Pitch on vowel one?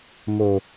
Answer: low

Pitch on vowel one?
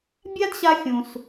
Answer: high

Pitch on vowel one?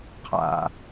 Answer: low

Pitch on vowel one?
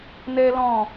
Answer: high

